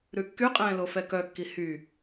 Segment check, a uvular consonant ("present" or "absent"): present